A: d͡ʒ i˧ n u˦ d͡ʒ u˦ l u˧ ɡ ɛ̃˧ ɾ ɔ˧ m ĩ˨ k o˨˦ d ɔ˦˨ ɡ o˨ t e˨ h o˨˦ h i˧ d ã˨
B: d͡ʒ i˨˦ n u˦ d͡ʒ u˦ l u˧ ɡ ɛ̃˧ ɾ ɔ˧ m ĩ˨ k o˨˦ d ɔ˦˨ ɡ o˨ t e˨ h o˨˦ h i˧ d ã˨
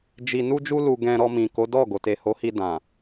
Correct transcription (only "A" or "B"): A